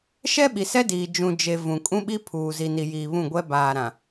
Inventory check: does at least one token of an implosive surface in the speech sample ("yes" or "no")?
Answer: yes